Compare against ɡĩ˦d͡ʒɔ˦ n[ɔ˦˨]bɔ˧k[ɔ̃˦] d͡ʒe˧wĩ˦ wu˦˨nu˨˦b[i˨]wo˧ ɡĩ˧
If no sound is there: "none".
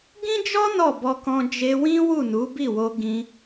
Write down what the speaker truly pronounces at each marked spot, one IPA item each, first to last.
ɔ˦˨, ɔ̃˧, i˦˨

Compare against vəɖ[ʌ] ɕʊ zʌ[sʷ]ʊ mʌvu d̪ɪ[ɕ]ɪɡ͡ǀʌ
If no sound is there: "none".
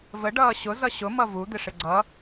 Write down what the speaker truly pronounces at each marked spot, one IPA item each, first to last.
ʌː, ɕ, ʂ

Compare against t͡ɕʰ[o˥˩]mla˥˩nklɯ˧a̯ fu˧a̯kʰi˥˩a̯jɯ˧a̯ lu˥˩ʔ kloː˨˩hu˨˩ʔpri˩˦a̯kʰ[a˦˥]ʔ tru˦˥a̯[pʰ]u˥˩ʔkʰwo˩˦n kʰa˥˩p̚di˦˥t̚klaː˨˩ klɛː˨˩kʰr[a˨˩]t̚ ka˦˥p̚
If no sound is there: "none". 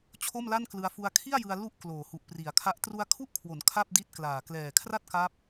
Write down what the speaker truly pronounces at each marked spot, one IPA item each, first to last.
o˥˩, a˦˥, kʰ, a˥˩

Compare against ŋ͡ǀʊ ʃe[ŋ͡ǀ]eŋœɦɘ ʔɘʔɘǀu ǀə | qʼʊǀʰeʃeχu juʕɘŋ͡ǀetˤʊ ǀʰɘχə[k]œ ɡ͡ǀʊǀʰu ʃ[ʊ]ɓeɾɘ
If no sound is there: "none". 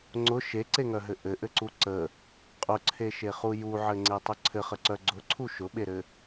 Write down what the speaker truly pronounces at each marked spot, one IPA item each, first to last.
ǀ, ǀ, ʊ

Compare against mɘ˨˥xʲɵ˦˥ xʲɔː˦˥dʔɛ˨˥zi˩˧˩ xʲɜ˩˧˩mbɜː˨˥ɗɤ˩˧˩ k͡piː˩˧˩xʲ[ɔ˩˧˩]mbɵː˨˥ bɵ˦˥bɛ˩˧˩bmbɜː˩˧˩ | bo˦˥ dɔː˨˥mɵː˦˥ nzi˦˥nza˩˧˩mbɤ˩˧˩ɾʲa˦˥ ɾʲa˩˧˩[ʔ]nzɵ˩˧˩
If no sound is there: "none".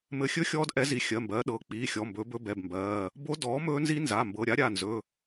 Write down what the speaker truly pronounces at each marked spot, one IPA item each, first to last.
ɔ˩˧˩, none

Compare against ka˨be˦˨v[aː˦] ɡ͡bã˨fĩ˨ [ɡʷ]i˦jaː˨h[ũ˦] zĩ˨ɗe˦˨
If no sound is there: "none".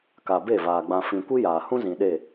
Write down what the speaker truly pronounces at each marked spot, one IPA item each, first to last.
aː˨, kʷ, ũ˦

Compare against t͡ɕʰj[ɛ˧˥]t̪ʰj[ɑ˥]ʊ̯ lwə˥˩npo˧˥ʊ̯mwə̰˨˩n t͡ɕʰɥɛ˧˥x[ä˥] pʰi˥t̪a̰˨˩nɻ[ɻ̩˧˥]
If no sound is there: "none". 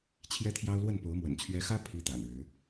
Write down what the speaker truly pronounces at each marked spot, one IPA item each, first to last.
ɛ˥, ɑ˥, ä˥, ɻ̩˧˥

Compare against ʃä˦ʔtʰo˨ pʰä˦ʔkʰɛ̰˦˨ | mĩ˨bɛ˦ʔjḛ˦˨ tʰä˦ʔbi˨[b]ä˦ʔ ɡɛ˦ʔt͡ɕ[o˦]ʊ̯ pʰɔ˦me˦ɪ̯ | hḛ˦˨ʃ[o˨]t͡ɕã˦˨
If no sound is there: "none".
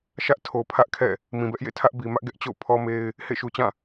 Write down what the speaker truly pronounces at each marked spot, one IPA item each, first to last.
m, o̰˦˨, u˨

